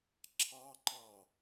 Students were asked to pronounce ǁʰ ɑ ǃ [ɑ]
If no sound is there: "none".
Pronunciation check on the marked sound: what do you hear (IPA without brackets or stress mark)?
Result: ɑ